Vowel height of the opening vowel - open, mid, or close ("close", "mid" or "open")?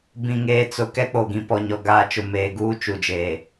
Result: close